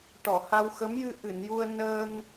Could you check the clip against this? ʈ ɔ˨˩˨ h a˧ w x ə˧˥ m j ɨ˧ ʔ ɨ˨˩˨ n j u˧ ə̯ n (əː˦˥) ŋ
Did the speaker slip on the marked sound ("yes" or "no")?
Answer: yes